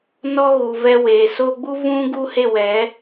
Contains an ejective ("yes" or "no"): no